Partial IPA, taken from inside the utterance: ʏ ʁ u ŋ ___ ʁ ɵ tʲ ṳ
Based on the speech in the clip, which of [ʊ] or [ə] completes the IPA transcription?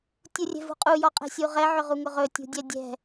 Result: ʊ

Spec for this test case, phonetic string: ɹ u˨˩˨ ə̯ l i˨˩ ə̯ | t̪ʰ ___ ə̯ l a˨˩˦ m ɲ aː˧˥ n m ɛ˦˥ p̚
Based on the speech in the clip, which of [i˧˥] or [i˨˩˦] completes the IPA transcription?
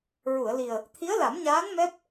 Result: i˧˥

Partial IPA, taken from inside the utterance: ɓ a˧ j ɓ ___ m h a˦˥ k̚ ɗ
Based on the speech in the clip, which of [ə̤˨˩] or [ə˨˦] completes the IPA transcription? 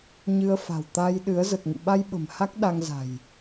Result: ə̤˨˩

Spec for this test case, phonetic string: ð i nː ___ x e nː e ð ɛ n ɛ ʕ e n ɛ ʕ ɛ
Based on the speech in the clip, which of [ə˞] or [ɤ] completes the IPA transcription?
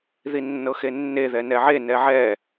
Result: ɤ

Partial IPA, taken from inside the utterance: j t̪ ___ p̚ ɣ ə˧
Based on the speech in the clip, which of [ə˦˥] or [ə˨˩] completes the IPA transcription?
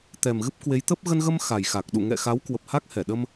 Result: ə˦˥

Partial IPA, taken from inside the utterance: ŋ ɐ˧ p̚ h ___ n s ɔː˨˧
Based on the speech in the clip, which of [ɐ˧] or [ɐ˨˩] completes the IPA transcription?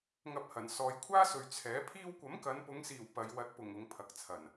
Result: ɐ˨˩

